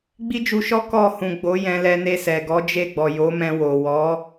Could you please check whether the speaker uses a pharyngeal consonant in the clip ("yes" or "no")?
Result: no